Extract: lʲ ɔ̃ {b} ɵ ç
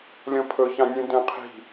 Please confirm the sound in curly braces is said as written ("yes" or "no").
no